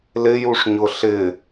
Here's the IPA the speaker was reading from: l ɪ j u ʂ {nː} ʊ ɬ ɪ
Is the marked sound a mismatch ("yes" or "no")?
yes